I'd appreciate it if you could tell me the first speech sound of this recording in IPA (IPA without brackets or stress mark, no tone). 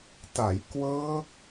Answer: t